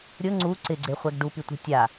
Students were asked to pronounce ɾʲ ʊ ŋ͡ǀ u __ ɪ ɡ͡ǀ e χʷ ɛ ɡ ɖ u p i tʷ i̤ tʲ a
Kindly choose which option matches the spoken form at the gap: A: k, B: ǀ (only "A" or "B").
B